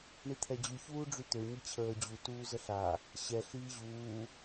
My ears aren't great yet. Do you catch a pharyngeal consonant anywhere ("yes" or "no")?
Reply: no